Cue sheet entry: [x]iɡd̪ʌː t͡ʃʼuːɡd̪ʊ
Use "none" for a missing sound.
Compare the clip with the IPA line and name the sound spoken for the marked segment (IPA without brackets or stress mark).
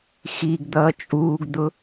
x